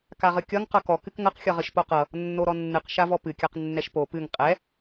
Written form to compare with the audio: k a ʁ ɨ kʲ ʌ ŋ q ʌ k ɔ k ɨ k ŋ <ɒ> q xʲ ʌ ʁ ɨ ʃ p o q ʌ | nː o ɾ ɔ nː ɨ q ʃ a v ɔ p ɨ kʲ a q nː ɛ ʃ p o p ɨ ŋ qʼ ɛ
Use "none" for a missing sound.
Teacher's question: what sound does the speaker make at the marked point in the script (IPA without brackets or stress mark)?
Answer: ʌ